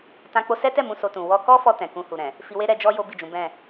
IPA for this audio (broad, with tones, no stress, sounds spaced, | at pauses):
t ã˧ k͡p o˧ s ɛ˦ t ɛ˦˨ m ũ˧ s o˧ t ũ˨ w ɔ˧ k ɔ˦ f ɔ˧ t ɛ̃˨ k ũ˧ h u˨ ɾ ɛ̃˨ | f i˧ w e˦ ɾ ɛ˧ d͡ʒ ɔ˦ j o˦ b i˦˨ d͡ʒ ũ˨˦ b ɛ̃˦˨